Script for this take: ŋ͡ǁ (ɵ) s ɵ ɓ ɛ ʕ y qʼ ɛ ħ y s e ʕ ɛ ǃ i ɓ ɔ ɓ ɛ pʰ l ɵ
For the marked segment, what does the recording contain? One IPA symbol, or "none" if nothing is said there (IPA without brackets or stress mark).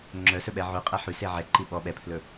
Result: œ